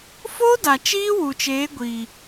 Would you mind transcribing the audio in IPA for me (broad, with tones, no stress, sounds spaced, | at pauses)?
f o˦ d a˨ t͡ʃ iː˦ w u˨ t͡ʃ eː˨˦ ɡʷ iː˨